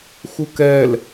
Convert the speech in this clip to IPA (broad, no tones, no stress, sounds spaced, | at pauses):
x u k ɛ l